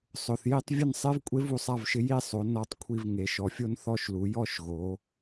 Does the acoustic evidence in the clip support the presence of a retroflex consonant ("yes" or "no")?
no